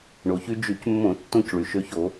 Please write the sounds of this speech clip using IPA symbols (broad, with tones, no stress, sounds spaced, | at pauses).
ɳ o˩ ç y˧ d͡ʒ y˧˩˧ c mː õ˧˩˧ tː õ˧ c ɭ y˩ ʃ ø˧ ç o˧˩˧